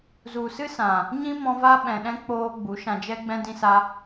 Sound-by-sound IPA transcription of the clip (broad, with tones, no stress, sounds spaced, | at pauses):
z u˨ s ɨ˦ s ã˨ | ɲ ĩ˦ m ɔ̃˧ v a˦ ɓ ɛ̃˨ ɗ ɛ̃˧ k͡p oː˧ ɡ͡b u˨˦ ʃ ã˧ d͡ʒ ɛ˦ ɡ͡b ɛ̃˧ d ĩ˧ s a˧